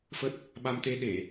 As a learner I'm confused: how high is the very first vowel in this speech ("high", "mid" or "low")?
mid